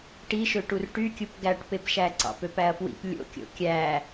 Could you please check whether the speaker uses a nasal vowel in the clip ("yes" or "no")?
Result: no